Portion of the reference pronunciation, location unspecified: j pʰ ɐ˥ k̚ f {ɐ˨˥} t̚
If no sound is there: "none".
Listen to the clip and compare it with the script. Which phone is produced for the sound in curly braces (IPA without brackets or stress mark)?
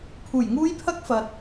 ɐ˨